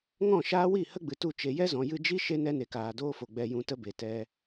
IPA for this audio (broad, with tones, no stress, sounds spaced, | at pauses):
ŋ ɔ̃˦˨ ʃ aː˦ w i˦˨ h ə˦ ɡ͡b ɨ˨ t u˧ t͡ʃ e˨ j ɛ˦ z ɔ̃˨ j ɨ˧ d͡ʒ i˦ ʃ e˦ n ɛ˧ n e˨ k aː˨ d oː˦ f o˨ ɡ͡b ɛ˧ j ũ˧ t ə˦ b e˨ t ɛ˧